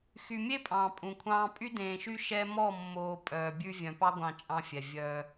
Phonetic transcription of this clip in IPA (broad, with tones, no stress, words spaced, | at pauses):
xy˨mʲe˦pʼɑ̃ː˨ pʼũ˨kʷʰɑ̃ː˦ pʼy˦dẽː˨ʃy˦ ʃɛ˦ mɔ˦˨mːoː˨ pʼœː˨bʲʉ˦ vʲœ̃˨pɑ˦ɡʷɑ̃˨ t͡ʃʼɑ̃˦fʲɛ˨ vʲœː˦